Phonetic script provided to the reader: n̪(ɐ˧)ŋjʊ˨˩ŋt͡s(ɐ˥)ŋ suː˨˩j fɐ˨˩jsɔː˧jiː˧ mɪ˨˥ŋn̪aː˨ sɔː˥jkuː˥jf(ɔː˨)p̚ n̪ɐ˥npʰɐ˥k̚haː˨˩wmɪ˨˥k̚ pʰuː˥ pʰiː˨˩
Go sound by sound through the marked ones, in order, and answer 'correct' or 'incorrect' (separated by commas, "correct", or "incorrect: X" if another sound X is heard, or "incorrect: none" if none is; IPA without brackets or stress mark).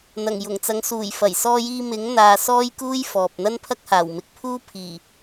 incorrect: ɐ˨˩, incorrect: ɐ˨˥, correct